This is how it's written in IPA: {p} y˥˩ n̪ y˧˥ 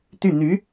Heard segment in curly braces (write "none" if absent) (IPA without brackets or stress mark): t̪